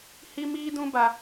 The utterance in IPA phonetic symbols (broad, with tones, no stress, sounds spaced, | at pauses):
h i˦ m iː˦ d ũ˦ b a˦